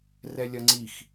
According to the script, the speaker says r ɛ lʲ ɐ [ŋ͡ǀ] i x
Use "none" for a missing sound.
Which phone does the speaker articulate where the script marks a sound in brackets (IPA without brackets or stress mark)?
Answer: ŋ͡ǀ